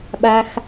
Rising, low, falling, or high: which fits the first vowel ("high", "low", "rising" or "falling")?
low